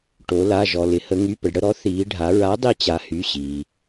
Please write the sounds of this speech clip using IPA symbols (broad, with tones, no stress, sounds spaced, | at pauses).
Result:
ʈ o˩˧ l a˩˧˩ ʒ ɔ˩ l ɪ˩˧ h ə˩˧ ŋ y˩˧˩ p ə˩ ɖ ɽ ə˥˩ ɾ ɔ˨˥ θ iː˩˧ ɖʱ a˩˧ ɹ a˨˥ dˤ i˧ t͡ɕ a˩˧ h y˩˧˩ ɕ iː˩